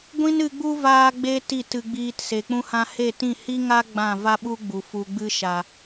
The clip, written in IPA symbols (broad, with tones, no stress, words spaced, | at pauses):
ɡʷĩ˦nɨ˧ɡ͡bu˦ vaː˦ɡ͡be˦ ti˦˨tɨ˧ɡ͡biː˧t se˨ k͡pũ˧hã˧ he˦˨tĩ˦˨ hi˦ŋa˦ ɡ͡bã˦˨ va˦ɓu˦ɡ͡bu˨ fu˨ɡ͡bɨ˧ʃa˨